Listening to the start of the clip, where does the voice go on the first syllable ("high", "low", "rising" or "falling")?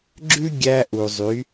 high